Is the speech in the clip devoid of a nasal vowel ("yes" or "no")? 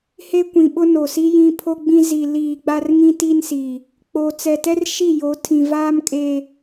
no